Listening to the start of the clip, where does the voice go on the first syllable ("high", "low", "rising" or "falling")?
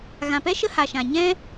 low